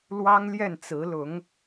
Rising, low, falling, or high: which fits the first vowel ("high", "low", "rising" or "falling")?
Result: high